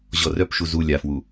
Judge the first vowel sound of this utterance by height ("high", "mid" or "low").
mid